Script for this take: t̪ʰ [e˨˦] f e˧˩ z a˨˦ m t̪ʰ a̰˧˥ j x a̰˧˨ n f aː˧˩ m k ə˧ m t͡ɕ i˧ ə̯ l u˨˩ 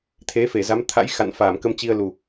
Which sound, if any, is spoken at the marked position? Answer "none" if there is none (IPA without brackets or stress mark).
e˨˦